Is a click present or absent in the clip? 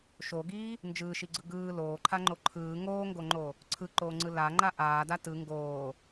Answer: present